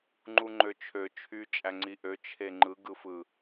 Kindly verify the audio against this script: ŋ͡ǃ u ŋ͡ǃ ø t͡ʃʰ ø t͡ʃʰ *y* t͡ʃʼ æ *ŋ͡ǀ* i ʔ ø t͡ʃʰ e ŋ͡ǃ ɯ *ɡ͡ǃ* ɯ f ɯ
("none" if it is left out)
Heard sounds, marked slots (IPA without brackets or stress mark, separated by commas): y, ŋ͡ǀ, ɡ